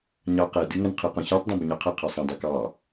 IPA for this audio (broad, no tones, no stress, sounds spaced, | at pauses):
ɲ ɑ q ɛ d ɨ ŋ ə n qʰ ɨ q ɔ̃ ç ɑ tˤ dˤ ɛ̃ b ə ɲ ɑ qʰ ə qʰ ɛ sˤ ɛ̃ dˤ ɛ k ɑ